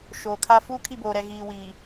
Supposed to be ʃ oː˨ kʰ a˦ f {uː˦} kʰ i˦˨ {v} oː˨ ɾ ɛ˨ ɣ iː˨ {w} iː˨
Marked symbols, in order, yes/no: yes, no, yes

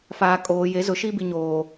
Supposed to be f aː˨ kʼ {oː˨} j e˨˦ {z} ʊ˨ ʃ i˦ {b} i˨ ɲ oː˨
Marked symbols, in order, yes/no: yes, yes, yes

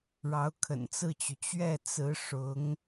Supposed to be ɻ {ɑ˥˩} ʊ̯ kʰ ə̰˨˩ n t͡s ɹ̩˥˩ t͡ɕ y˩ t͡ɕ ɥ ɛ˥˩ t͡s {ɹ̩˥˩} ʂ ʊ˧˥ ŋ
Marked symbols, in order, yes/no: no, no

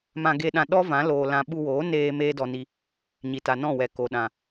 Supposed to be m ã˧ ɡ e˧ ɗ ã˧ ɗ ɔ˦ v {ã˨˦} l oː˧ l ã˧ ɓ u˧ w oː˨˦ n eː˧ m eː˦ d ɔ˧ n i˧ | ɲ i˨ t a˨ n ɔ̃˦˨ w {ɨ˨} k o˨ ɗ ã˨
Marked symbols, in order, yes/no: yes, no

